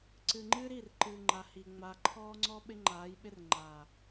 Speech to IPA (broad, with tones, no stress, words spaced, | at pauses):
ǀɨ˨ŋ͡ǃɨː˦ɾi˦˨r ǃɨː˨ŋ͡ǃa˨hi˨ ŋ͡ma˨ ǃʰɔː˦ŋ͡ǀɔ˦ ɓɪ˦ŋ͡ǃaː˨˦jɓɪ˦r ŋ͡ǃaː˨